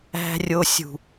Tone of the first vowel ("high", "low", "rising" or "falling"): high